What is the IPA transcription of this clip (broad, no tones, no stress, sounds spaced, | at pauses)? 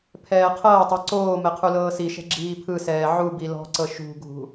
pʰ ɛː qʰ ɤː tˤ ɛ ǀ oː m ɛ qʰ u l ɤː s i ʃ ɛ̤ ɡ͡ǁ iː pʰ ɯ s ɛː ʕ u b i l ɔ̤ ǀ ɤ ʃ ṳ ɡʱ ṳ